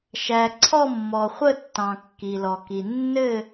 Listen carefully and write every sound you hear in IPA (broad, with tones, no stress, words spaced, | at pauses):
ʃæ˩ ǀʰɔ˥˨mːɔ˩χʷə˥˨tːɑ̃˩ kːi˩lɔ˩ki˩ nːɘ˥˨